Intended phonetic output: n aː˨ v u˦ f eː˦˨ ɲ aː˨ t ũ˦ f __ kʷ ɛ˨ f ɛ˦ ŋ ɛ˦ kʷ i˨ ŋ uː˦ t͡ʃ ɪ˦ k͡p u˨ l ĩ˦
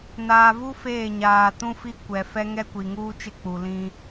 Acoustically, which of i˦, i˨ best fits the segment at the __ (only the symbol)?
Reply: i˦